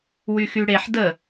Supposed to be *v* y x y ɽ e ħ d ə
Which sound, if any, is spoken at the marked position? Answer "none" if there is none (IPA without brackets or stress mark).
w